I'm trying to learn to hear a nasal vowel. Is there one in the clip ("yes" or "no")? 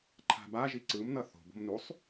no